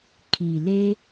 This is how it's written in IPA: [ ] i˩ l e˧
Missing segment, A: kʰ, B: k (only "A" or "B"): A